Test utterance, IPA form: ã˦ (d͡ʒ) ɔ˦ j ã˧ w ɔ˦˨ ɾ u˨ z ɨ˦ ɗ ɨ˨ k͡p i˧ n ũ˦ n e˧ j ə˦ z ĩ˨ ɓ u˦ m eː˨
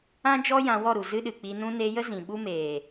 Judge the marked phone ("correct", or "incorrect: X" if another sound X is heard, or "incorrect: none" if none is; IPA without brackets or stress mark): correct